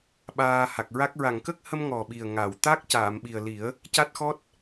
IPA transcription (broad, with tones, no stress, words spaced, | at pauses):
ɓaː˧ha˨˩k̚ɹa˦˥k̚ ɹa˨˩˨ŋkə˦˥k̚hə˧m ŋɔ˨˩ɓi˨˩ə̯ŋa˨˩˨wt̪a˦˥k̚ caː˨˩˨mɓi˨˩ə̯ li˨˩˦ə̯ | ca˦˥t̚xɔ˦˥t̚